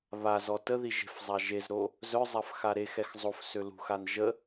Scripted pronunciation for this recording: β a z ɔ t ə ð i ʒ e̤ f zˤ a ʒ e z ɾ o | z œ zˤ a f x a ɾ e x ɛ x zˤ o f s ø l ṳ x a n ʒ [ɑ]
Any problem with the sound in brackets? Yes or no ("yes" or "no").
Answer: yes